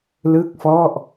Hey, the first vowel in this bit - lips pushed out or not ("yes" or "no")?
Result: no